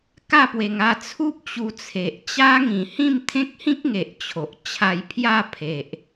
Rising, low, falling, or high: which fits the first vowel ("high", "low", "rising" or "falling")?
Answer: falling